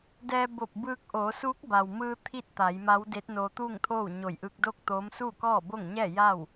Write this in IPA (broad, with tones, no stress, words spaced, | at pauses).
dɛː˧ bo˧˩p̚bɯː˧k̚ʔoː˩˧ suː˧˥k̚ba˩wmɯː˧ t̪ʰi˥˨t̚t̪a˩˧jma˧˥wde˧˥t̚ noː˧t̪uː˥˨ŋt̪ʰoː˥˨w ɲo˧˩jʔɯː˧k̚doː˥˨k̚ t̪oː˧˥m suː˥˨kɔː˥˨bo˥˨ŋɲɛː˥˨ ja˥˨w